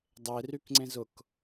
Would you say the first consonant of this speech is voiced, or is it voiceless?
voiced